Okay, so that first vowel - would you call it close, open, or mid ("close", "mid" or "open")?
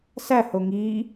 open